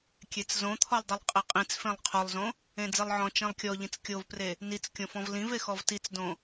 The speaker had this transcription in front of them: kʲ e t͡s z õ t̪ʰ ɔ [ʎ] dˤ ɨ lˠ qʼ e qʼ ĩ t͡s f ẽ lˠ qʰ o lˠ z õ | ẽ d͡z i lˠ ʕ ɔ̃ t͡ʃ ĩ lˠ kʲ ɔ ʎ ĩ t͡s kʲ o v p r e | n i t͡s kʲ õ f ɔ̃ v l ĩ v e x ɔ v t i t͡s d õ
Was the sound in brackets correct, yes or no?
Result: no